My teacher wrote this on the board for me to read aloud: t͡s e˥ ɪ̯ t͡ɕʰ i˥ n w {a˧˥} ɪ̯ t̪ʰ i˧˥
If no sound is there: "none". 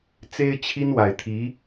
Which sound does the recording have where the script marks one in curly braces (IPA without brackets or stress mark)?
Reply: a˨˩